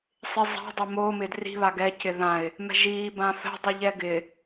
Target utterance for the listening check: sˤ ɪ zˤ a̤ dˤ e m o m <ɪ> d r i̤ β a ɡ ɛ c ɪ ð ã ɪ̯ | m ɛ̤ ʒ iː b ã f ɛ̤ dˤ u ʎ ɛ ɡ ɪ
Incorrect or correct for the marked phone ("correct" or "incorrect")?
correct